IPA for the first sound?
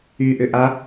y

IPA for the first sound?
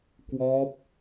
k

